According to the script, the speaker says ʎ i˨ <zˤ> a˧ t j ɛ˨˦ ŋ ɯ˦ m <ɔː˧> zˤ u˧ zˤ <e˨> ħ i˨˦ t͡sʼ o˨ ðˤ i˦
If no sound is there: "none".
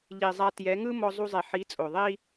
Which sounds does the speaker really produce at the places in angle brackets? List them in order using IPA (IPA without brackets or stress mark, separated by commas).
zˤ, ɔ˧, e˨